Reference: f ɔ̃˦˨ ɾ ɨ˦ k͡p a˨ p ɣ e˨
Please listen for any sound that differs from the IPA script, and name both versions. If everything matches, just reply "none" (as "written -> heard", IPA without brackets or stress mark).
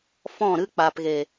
none